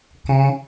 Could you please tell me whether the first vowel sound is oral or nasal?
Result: nasal